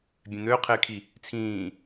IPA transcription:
bʲ ɛ̃ n̪ øː qʰ ɪː kʰ i | t͡sʰ ĩː

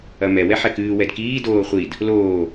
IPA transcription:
ɐ m ɛ w ɛ ħ ɛ k ɨː w ɛ d k iː d oː χʷ i d | l oː

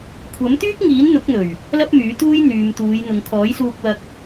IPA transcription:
kʷʰ ɐ˨˥ m t̪ yː˥ k̚ ŋ iː˨˥ n n̪ ʊ˨˥ k̚ n̪ ɵ˨˩ ɥ | l ɐ˥ p̚ m yː˨˥ t̪ uː˥ j n̪ yː˨ m t̪ uː˨˧ j n̪ ʊ˨ ŋ kʰ ɔː˨˥ j s uː˧ k̚ w ɐ˧ k̚

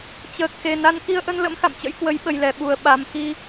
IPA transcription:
t͡ɕ əː˨˩ k̚ x e˨˩ n a˧ n k i˧ ə̯ ʔ ə˧ n l ə̰˧˥ m x a̰˧˨ m t͡ɕ ə̰˧˥ j k w ə˨˦ j ɓ ə˨˩ j l ɛ˧˩ ɓ u˨˩ ə̯ ɓ a˨˩ m x i˧

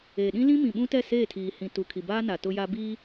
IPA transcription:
eː˨ ɗ ĩ˦ l ĩ˦ m ĩ˨ ɓ ũ˦ t ɛ˦˨ s eː˦˨ tʰ iː˨ h ĩ˨ t u˨ kʰ i˨ b aː˦ n a˨ t ʊ˦ j a˦ b i˦

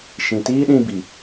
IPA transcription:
ʃ ĩ˨ t iː˦ ɗ ĩ˧ b i˨

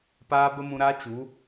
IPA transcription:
p aː˦ b ə˦ m ũ˧ ɾ aː˦ t͡ʃ u˨˦

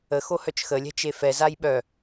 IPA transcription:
ə x o h œ t͡ʃ x ə lʲ ɛ̤ t͡ʃ e f ɛ z a j ɓ œ

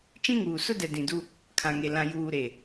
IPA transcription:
t͡ʃ ĩ˦ ŋ uː˨ s ʊ˦ d ɛ˨ d ĩ˨ d u˦ | kʰ ã˨ ŋ e˨ l ã˨ j uː˨ ɾ e˨

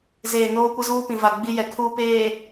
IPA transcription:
z eː˨ n oː˦ kʷ ɪ˦ z uː˦ p ĩ˨ v a˨ ɡ͡b i˦ j ɛ˨ kʰ uː˨ p eː˨

